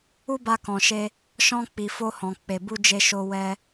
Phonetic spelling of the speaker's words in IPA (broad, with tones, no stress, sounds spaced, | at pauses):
u˦ b a˧ k ɔ̃˨ ʃ e˧ | ʃ ɔ̃˧ k͡p i˨ f o˧ h ɔ̃˨ k͡p e˨ b u˧ d͡ʒ e˧ ʃ o˧ w ɛ˧